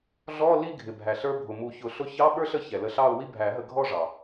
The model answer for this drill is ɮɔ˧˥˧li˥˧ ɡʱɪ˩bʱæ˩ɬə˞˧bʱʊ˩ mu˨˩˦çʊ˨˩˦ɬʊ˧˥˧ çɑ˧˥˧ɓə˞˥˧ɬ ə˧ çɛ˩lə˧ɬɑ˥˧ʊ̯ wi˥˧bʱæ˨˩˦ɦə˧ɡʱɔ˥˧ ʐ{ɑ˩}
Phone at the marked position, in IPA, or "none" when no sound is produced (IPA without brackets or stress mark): ɑ˩